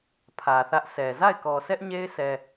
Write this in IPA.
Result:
pʰ ä˨ θ ä˦ ʔ sʰ ɛ˨ z a˦˨ ɪ̯ k ɔ˨ sʰ ɛ˦ ʔ ɲ e˦ ɪ̯ sʰ ɛ˦

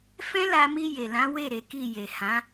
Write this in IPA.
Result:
f ɛ̃˦ l a˧ m i˧ j e˨ l ã˨˦ w e˦˨ ɾ e˨˦ k i˦˨ j e˨ h ã˨˦

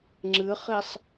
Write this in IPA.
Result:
ŋ͡ǁ ɨ χ i sˤ

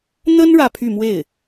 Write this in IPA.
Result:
n̪ ə˥ n ɻ ä˥˧ pʰ y˥˧ m w e˥˩ ɪ̯

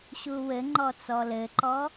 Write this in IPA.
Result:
ɕ u w ɘ ŋ͡ǃ ɔ t͡s ɔ l ɘ ǃ ɔ

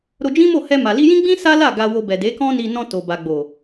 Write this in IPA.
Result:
ɾ o˧ d͡ʒ ĩ˦ m o˦˨ h ɛ˧ m a˨ l i˧ j ĩ˦ ɡ͡b ĩ˦ s a˦ l a˦˨ ɡ a˧ w o˧ b ɛ˨ d e˨˦ k ɔ̃˦ n i˧ n ɔ̃˧ t o˨ b a˨ ɡ͡b o˨

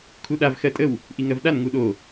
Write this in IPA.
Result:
kʰ u ɗ a v x ɜ tʼ ə w | ʔ i ŋ ɜ v ɗ a n ŋ u ɗ o

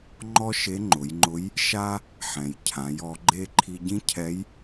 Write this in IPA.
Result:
ŋ͡ǃ ɔ˥ ʃ e˧˥ ŋ͡ǃ ʊ˩˧ j ŋ͡ǃ ʊ˧˥ j | ʃ a˥ | ħ ɛ̃˩ j cʰ ã˩˧ j ɔ˩˧ ɡ͡ǃ e˥ ǃʰ i˧ ɟ ĩ˥ cʰ ɛ˧˥ j

